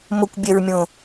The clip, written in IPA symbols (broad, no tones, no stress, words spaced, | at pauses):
mʊkʷbʲɛɹmʲõ